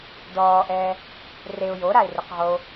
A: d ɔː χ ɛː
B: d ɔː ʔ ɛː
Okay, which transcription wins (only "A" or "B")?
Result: B